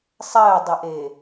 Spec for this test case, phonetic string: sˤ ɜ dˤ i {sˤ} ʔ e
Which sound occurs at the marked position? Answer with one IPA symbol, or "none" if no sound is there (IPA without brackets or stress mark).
none